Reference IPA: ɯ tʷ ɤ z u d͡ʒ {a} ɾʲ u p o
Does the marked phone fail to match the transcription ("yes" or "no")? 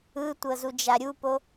no